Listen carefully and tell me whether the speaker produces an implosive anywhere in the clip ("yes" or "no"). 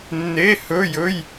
no